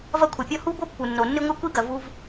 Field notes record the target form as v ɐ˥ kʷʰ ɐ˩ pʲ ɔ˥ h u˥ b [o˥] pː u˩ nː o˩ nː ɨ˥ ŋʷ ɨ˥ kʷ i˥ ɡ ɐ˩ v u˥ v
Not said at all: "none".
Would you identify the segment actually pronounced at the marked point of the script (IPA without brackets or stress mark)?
o˥